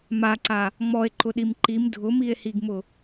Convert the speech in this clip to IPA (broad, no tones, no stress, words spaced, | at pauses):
maǀa | ŋ͡mɔe̯ǃʊɗim ǃim dʱʊmie̯hiɡmʊ